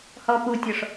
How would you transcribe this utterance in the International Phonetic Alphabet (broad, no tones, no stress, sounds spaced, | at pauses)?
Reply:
h ɔ p u tʲ ɔ ʂ